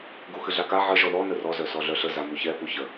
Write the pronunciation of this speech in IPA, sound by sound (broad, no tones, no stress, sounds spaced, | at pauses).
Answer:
ɡ u x ɨ ɮ a k a ʕ ə ʒ ɔ ð ɔ n ə r ɔ z œ s ɔ ɮ œ ɬ ə z a m u ç ɛ p u ç ə